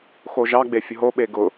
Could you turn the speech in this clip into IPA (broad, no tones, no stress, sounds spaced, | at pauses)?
x o ʒ ɑ ɡ͡b e fʲ ʊ ɦ o ɓ e ɡ ʊ